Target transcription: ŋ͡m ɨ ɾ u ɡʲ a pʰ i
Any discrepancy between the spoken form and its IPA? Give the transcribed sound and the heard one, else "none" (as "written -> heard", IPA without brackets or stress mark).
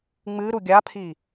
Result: none